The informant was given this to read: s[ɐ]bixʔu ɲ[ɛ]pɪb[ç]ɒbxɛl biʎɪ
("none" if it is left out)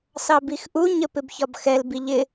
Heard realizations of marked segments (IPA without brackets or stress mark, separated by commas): ɑ, ə, ç